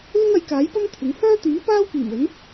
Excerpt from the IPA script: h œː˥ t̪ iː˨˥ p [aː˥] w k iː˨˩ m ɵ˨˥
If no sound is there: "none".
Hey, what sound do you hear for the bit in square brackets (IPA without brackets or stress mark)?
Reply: aː˥